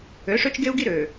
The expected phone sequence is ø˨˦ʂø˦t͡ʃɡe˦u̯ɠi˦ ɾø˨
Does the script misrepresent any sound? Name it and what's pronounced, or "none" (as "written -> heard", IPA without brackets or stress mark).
ɠ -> ɡ